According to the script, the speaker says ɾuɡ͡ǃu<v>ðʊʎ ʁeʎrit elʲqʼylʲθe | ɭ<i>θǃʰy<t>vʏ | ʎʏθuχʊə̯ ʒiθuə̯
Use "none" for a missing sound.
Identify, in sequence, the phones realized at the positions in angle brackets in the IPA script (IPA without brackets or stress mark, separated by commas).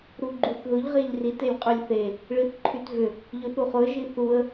θ, i, t